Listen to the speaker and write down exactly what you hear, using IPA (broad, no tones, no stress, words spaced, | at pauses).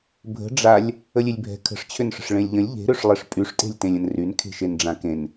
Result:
bʱə̤ ɖ͡ʐalʲ | əlʲelʲbʱɛ̤ kʰə̤ʂt͡ɕʰʏnʂə̤ʂ ɭẽlʲʎə̃lʲ ʎe̤ɾøʂlˠeʂ pʼyʂtʼe̤lʲtẽlʲ ə̃nryn kʰe̤ʃenɖ͡ʐãkẽn